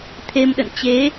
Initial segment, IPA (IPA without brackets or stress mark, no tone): t̪ʰ